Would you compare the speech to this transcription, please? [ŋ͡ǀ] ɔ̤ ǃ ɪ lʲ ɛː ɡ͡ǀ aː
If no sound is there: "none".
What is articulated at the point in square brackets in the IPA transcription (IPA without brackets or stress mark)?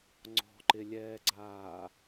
ŋ͡ǀ